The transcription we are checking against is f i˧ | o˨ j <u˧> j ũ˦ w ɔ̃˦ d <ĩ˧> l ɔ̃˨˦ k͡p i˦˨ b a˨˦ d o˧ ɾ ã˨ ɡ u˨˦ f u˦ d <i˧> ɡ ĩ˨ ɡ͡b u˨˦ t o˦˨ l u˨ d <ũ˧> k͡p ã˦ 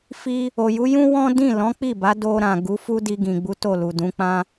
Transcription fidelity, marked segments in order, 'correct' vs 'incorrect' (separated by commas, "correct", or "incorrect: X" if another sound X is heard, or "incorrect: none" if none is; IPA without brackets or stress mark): incorrect: u˨˦, incorrect: ĩ˦˨, correct, incorrect: ũ˨˦